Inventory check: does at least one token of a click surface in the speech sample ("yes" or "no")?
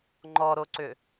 yes